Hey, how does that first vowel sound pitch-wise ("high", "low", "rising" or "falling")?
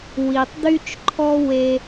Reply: low